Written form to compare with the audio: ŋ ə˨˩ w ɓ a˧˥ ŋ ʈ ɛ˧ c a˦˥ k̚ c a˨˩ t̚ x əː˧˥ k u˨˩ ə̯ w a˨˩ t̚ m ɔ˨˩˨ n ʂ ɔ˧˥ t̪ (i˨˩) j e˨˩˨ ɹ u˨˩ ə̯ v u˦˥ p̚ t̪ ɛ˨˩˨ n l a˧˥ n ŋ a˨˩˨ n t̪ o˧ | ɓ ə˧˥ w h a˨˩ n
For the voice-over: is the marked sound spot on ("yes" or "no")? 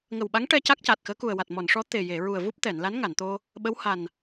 no